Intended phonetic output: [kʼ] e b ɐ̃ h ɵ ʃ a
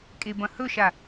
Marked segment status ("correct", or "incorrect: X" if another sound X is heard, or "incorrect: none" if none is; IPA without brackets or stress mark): correct